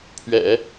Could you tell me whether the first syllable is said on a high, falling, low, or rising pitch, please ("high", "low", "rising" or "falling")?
low